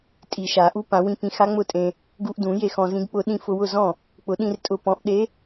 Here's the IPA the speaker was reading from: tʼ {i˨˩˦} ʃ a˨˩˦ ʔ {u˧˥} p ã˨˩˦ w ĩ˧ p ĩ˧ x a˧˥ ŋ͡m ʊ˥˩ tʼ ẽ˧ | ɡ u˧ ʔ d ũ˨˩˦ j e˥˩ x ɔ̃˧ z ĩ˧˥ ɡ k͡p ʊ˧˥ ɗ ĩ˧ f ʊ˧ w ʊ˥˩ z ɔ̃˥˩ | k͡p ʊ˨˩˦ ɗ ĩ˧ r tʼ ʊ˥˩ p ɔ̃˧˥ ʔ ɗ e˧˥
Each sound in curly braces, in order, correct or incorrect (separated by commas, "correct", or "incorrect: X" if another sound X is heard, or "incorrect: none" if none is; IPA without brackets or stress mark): correct, correct